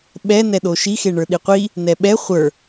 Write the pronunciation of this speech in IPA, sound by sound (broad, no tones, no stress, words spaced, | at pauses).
ɓɛ nɛɗoʃi xeɳə˞ɗiqʷi | nɛɓɛ χʷə˞